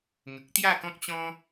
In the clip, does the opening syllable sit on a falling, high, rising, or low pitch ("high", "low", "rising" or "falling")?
low